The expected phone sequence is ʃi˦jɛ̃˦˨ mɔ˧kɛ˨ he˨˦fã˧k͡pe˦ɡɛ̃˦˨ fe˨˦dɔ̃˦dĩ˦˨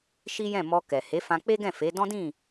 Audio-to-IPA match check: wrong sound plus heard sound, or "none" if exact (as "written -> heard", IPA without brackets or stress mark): none